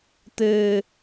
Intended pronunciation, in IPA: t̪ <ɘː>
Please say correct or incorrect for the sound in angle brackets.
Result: correct